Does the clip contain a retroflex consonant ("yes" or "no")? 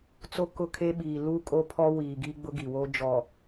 no